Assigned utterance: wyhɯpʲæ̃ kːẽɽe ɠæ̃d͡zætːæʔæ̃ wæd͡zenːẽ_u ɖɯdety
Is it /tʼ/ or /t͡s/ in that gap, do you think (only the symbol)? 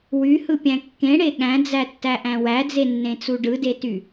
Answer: t͡s